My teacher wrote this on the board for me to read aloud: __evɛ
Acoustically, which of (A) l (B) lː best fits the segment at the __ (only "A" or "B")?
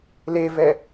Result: A